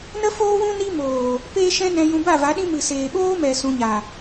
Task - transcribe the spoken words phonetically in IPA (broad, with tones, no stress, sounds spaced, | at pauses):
n ə˦ f oː˦ w ũ˦ n i˦ m oː˨ | p eː˦ ʃ ɛ̃˦ n ɛ̃˧ j ũ˧ b a˦˨ v a˨˦ ɗ ĩ˦ m ɨ˨ s eː˨ ɓ oː˦ m ɛ˨ s ũ˧ ɲ a˨